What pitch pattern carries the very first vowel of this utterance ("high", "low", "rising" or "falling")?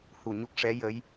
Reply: low